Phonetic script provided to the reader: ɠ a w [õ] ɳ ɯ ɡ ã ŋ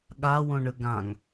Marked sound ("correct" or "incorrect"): correct